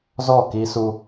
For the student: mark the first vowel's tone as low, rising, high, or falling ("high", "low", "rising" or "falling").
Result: falling